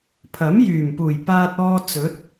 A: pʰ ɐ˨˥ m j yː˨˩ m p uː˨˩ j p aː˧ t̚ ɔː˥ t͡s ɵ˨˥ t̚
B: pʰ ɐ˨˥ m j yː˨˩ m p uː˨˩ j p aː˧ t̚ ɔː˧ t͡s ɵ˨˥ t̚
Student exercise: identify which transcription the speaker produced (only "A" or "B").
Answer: B